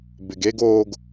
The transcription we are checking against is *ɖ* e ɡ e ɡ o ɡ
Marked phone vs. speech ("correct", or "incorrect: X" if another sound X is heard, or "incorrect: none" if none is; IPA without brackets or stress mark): incorrect: b